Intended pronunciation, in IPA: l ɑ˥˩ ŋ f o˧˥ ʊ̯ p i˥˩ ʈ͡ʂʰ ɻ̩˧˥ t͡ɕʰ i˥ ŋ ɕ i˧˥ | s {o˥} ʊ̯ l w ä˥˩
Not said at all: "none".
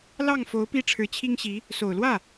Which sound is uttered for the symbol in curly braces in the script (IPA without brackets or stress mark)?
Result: o˨˩